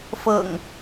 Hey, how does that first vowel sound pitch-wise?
low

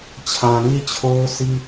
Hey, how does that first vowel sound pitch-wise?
low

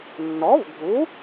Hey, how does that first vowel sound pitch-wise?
rising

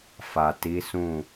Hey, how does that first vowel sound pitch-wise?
low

